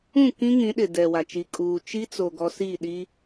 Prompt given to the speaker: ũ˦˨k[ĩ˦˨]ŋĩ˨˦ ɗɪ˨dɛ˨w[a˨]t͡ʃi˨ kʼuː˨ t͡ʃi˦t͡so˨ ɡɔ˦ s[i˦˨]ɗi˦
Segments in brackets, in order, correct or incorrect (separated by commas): incorrect, correct, correct